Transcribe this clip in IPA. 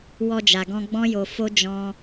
w ɔ˧ d͡ʒ a˨ ɡ ɔ̃˧ ɡ͡b ɔ̃˦ j o˧ f o˦ d͡ʒ ɔ̃˧

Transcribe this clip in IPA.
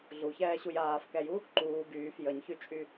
ɮ u ç ɛː ɕ u j aː f k ɛ j u | ǃ uː ɡ yː f j ə ɲ ç y t͡ʃʼ y

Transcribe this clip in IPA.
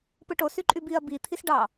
p ɯ ʈ o s y ǃʼ y b i ɐ̯ b i t̪ʰ i s ɖ ɑ

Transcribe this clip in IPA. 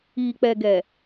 iː˨ k͡p ɛ˨ ɡ ɛ˨

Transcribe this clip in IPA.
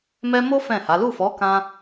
m ɛ˦ m o˦ f ɛ̃˦˨ h a˨˦ l u˦˨ f ɔ˨˦ k ã˦

